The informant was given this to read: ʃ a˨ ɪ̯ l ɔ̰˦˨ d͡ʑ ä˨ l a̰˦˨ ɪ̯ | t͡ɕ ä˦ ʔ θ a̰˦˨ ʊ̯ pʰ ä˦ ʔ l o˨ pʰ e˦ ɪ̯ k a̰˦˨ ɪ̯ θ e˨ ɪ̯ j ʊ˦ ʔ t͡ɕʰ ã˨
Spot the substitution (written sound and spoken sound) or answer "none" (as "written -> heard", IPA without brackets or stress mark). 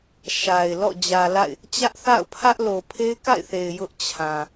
none